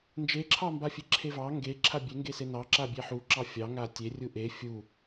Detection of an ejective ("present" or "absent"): absent